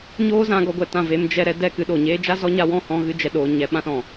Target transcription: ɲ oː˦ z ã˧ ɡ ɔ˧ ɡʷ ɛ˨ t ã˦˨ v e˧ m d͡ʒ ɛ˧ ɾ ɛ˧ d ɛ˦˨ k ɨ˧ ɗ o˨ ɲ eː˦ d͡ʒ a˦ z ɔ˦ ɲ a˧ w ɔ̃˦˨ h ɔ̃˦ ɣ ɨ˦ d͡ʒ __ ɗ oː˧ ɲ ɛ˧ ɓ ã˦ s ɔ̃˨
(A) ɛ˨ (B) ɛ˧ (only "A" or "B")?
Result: B